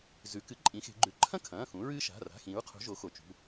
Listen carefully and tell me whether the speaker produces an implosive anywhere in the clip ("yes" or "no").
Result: no